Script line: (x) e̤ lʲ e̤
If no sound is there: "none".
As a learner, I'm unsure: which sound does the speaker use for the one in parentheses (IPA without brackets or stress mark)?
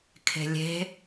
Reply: kʰ